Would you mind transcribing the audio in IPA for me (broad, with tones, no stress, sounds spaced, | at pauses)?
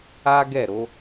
a˦ ɡ ɛ˦˨ ɾ o˨˦